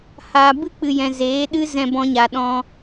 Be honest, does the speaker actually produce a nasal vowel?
yes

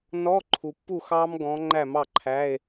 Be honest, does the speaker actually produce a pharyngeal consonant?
no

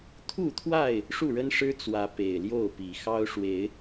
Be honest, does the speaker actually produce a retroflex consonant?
yes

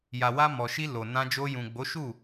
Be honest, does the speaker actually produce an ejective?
no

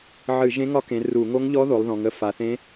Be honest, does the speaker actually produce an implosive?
no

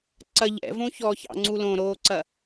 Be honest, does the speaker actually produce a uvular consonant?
no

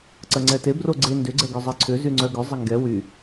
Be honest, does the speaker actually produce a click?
yes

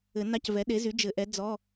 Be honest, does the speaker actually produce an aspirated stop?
no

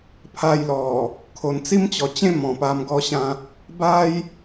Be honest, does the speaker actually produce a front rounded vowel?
no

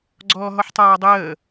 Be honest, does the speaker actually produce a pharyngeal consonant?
yes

